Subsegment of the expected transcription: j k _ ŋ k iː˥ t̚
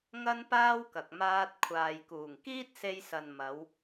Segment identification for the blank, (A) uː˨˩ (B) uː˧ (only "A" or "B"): A